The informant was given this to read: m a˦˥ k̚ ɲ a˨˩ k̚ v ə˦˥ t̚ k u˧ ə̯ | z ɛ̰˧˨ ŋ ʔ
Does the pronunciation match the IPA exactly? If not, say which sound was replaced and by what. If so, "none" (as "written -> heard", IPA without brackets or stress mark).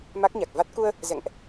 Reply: ə˦˥ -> a˦˥